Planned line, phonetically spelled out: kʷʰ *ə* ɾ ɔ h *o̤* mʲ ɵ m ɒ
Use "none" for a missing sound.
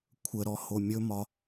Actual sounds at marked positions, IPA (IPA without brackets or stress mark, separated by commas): ə, o